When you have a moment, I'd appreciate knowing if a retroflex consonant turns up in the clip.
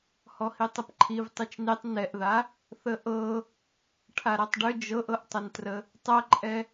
yes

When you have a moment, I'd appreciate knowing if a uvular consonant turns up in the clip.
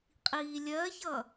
yes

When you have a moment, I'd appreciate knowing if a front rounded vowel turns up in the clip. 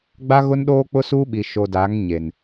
no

